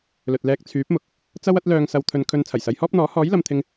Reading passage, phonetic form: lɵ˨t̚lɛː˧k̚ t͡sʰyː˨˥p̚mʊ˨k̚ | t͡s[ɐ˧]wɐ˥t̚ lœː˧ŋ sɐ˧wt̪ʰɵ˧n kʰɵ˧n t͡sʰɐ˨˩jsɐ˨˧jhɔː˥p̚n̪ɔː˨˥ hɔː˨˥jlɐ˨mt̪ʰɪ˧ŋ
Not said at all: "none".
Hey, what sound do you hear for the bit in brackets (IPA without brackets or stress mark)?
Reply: ɐ˥